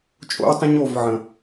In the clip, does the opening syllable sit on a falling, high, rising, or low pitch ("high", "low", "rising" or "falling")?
high